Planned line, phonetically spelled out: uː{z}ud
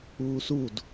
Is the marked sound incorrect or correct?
incorrect